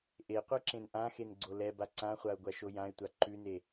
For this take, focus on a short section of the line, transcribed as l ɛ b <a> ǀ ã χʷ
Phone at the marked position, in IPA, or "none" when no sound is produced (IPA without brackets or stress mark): a